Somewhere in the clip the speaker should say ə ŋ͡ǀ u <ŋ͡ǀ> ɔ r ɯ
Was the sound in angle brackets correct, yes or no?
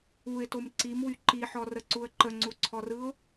no